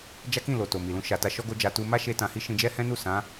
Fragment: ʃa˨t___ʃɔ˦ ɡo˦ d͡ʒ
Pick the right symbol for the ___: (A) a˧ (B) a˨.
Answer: A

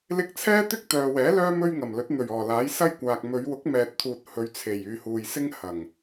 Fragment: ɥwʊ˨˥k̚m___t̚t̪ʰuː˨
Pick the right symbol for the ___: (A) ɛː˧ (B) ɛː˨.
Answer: B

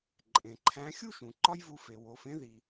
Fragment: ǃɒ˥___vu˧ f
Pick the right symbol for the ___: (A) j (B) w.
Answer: A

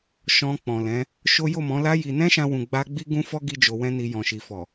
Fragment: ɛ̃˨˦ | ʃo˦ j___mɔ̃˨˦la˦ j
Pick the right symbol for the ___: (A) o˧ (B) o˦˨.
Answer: B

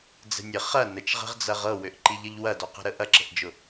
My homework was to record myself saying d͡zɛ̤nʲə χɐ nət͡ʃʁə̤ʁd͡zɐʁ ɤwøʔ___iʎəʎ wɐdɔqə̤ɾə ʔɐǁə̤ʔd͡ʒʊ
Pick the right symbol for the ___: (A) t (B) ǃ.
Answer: B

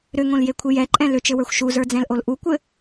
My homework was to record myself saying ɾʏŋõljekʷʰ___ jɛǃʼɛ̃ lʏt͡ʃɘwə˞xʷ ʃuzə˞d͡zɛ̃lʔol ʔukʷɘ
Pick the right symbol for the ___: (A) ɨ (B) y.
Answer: A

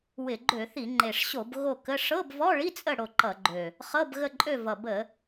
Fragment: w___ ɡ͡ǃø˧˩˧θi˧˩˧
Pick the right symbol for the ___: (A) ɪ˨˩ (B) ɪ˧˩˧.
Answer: B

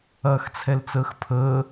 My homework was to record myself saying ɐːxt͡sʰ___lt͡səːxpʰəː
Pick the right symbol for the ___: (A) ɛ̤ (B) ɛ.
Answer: B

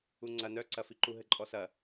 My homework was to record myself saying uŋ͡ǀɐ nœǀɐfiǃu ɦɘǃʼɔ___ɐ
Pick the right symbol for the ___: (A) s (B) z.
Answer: A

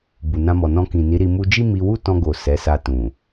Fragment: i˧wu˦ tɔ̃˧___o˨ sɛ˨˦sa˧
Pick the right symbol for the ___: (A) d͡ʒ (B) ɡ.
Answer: B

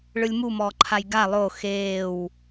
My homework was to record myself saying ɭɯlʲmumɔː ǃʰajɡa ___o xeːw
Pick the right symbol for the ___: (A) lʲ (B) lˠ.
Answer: B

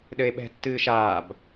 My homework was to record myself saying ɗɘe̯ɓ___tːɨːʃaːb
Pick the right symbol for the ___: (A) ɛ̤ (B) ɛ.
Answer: A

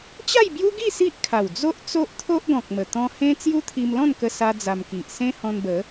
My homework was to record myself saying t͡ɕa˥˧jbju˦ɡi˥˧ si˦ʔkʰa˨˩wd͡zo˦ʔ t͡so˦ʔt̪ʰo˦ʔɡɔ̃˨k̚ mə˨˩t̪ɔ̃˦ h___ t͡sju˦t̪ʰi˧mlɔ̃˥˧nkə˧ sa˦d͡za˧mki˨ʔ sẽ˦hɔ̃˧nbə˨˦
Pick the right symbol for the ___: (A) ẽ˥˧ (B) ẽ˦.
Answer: B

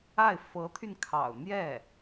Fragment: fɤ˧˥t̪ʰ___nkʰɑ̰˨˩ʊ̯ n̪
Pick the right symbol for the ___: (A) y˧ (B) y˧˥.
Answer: A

